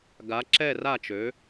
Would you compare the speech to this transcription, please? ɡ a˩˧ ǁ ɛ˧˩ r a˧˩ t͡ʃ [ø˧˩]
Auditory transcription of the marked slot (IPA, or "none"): ø˩˧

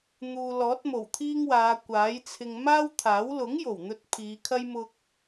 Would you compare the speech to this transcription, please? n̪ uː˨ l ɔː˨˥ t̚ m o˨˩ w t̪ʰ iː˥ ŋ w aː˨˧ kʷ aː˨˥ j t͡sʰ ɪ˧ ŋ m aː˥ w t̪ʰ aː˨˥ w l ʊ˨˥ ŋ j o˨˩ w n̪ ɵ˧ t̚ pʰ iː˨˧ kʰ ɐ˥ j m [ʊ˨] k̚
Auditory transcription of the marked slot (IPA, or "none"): ʊ˥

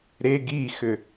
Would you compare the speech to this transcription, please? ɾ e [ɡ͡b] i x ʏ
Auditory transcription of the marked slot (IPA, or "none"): ɡ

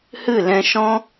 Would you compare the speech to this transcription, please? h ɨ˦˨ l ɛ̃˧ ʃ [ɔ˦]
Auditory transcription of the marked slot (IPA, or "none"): ɔ̃˦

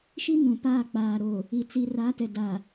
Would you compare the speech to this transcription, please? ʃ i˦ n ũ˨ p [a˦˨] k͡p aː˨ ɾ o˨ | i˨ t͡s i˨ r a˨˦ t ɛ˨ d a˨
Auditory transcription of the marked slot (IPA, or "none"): aː˦˨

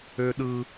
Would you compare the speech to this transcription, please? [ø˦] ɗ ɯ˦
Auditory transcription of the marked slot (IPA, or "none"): ø˦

